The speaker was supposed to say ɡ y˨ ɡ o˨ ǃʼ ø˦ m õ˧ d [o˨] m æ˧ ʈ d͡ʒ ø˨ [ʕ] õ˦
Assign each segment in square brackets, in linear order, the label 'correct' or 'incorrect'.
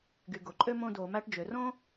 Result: correct, incorrect

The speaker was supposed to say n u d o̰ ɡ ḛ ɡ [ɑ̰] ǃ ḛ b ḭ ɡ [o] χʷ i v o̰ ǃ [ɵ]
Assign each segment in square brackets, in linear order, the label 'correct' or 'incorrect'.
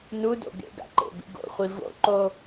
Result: incorrect, incorrect, incorrect

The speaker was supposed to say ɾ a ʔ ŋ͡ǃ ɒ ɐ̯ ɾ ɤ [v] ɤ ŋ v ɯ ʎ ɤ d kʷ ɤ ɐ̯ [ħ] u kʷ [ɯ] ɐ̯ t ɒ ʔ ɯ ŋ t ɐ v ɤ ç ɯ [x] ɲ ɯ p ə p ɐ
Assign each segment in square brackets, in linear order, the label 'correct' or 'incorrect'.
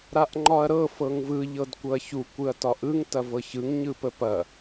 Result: incorrect, incorrect, correct, incorrect

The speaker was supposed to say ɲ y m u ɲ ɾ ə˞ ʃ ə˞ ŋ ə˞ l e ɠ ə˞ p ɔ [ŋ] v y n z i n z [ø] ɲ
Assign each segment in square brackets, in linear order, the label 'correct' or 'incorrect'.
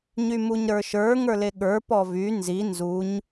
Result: incorrect, incorrect

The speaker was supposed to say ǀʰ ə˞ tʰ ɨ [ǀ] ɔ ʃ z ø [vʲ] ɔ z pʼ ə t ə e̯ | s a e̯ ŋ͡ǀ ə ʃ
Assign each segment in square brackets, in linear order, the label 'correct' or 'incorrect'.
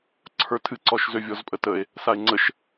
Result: correct, correct

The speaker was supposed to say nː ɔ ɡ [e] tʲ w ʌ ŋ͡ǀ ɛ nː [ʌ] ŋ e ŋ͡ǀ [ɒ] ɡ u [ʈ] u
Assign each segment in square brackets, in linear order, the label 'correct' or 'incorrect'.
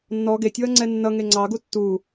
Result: correct, correct, incorrect, incorrect

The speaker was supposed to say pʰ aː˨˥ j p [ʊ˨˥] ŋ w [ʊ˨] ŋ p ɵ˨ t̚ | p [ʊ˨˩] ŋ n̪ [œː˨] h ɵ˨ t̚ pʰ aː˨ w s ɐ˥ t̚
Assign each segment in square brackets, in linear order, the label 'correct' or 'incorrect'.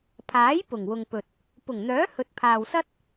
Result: incorrect, correct, correct, incorrect

